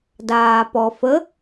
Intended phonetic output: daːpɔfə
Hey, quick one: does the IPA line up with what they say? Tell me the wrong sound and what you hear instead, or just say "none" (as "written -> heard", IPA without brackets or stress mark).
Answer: none